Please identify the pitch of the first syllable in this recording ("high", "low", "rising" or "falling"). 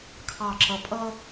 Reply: falling